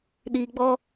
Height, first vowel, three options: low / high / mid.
high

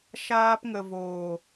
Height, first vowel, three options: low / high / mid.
low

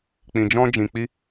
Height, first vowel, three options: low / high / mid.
high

